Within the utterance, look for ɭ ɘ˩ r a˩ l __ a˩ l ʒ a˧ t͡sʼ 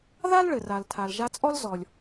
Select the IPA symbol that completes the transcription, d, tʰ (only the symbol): tʰ